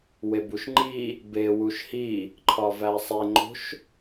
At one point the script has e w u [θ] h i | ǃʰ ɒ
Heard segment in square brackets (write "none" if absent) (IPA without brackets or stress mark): ʃ